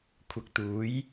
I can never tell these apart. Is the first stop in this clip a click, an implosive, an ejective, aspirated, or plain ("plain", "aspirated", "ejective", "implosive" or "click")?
aspirated